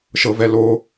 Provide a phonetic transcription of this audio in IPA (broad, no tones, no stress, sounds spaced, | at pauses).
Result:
ʃ ɤ v ɛ l o